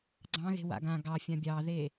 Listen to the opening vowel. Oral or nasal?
nasal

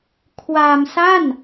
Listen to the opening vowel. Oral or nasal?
oral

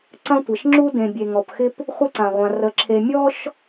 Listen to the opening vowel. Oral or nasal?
nasal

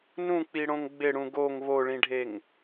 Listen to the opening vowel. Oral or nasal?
nasal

